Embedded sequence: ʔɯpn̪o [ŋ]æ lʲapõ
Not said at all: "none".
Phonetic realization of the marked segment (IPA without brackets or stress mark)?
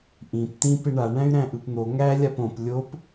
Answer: ŋ